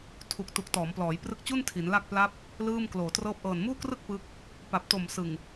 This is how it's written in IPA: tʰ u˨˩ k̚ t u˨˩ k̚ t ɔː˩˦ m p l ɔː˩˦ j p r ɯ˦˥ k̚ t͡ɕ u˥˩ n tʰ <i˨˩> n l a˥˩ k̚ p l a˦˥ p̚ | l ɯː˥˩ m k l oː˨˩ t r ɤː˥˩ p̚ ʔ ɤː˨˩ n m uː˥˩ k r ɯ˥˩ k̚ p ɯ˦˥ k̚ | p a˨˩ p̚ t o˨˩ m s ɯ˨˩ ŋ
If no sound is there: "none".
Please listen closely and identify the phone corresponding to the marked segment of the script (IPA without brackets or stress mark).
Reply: i˩˦